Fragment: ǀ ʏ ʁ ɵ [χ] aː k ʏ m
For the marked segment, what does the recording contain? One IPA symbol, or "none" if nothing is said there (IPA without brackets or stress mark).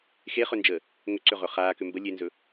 χ